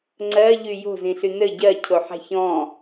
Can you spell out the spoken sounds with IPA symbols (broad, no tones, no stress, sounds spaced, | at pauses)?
ŋ͡ǀ ɜ ʎ y j o̤ z ĩ ɬ y n ɘ ɟ ɜ cʰ o ħ a̤ ç ɔ̃